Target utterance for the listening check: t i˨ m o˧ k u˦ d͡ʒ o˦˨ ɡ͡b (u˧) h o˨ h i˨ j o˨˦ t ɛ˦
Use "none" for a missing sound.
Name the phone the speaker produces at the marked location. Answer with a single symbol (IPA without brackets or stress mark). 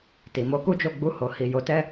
u˧